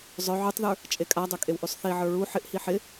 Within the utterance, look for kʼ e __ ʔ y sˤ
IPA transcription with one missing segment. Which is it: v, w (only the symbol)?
w